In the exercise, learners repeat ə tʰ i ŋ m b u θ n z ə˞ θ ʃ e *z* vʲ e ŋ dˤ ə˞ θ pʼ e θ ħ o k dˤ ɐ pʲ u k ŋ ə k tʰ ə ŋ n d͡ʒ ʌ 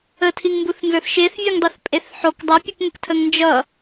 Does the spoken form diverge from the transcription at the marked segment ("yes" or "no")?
yes